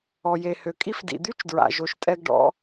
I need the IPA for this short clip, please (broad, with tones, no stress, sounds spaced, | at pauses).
ɔ˩ j e˩ h ø˩ kʼ i˥ f d ḭ˩ d̪ y˥ t͡ʃ d ɹ a̰˩ ʒ o˩ ʃ tʼ ɛ˥ ɡ ɖ ɔ̰˥